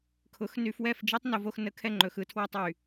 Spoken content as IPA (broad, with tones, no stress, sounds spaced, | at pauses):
kʰ ʊ˨˦ x n y˧ f w ɛ˦˨ f d͡ʒ i˦ tˤ n o˧ v o˧ x n ə˧ kʰ ɛ˧ ŋ͡ǃ ɵ˨ x ɯ˧ tʰ w ɛ˧ tˤ y˨